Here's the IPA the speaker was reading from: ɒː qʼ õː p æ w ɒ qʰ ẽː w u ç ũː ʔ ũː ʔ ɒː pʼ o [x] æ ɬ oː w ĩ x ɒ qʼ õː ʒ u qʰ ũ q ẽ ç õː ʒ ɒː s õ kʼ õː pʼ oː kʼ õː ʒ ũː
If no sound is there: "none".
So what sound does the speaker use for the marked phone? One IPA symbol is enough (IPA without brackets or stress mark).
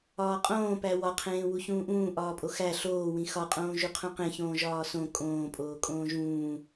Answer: x